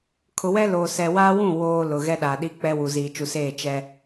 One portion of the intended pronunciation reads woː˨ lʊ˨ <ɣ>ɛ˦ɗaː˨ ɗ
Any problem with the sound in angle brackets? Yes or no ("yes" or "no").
no